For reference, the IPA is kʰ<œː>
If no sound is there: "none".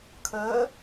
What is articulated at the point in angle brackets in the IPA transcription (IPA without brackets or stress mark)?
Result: œː